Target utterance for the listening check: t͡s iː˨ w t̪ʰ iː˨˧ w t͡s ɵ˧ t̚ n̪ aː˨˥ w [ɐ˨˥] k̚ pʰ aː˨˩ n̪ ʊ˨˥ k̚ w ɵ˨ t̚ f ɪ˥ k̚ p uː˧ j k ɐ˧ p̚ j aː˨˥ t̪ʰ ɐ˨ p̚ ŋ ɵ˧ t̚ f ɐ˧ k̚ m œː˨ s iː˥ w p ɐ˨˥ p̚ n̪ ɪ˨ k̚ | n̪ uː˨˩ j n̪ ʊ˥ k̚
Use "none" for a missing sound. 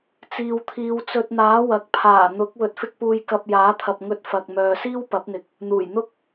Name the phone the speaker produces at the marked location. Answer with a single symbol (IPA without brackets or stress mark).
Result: ɐ˨˥